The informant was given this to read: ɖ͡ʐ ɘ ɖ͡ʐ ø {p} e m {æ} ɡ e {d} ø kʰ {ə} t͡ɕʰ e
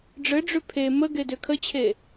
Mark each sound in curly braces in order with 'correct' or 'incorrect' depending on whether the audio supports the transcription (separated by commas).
incorrect, incorrect, correct, correct